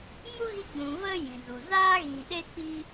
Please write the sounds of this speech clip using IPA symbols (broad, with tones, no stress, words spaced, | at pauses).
mu˦ɣi˧ ɡ͡bũ˨ və˦ jĩ˨zu˨ zaː˦ɣĩ˨ɗe˦k͡pi˦